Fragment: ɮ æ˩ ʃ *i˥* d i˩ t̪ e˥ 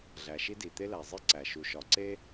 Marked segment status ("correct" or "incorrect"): correct